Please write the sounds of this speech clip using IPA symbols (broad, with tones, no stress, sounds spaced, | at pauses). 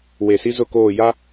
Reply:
w e˨ s i˦ z ʊ˦˨ k oː˦˨ j a˦